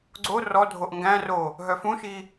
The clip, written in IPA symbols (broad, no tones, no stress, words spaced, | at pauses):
ɡ͡ǀo rɔdʱoʔ ŋɡæ̃ro | ɦœfũʃi